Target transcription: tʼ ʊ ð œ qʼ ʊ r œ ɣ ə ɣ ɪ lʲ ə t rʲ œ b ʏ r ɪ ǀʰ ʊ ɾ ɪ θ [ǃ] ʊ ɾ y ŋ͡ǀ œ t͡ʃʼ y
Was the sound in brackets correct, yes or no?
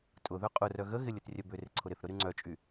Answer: no